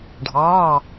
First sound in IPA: ɖʱ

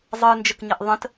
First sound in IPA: zˤ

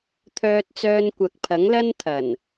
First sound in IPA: t̪ʰ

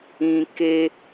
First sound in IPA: ĩ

